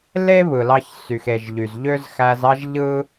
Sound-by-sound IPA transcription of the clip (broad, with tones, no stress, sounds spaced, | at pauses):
l e˥ β ɯ˩ l ɑ˧ ç s y˩ x e˩ ʒ ʎ y˩ z ʎ ø˥ z x æ˧ z ɑ˥ ʒ ʎ ɯ˥